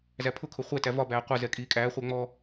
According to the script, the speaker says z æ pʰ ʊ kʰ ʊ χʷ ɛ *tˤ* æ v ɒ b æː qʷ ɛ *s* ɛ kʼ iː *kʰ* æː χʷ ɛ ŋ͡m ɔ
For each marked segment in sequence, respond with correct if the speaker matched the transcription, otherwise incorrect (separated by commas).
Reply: incorrect, incorrect, incorrect